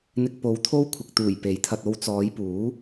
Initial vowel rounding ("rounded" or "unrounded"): unrounded